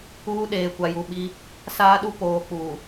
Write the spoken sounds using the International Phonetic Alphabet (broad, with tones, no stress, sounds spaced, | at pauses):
uː˦ ɗ eː˨ kʷ a˨ j u˨ ɓ i˦ | s aː˦ ɗ u˦ p oː˨ k͡p u˨